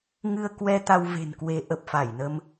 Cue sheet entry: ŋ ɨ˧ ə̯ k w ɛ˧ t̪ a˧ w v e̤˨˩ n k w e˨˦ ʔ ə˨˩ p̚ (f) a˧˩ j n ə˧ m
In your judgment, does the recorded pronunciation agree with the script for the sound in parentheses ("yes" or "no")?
yes